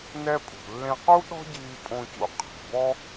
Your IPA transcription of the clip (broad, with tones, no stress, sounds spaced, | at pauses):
n ɛ˧ pʼ ṳ˩ lː ẽ˧ q u˥ ɗ ɔ̤˥ ɟ iː˧ pʼ õ˧ c ṵ˧ qʰ e̤˩ b ɔ˥